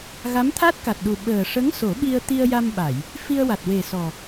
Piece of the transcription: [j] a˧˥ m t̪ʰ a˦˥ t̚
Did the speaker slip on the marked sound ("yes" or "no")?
yes